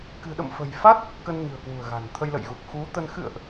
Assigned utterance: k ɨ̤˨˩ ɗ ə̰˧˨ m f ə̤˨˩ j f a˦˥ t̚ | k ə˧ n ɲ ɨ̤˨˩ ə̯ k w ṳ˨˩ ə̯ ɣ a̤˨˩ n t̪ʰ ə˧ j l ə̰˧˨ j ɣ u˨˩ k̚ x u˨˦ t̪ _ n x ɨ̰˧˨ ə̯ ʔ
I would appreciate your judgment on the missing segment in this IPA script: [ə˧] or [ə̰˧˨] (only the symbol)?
ə˧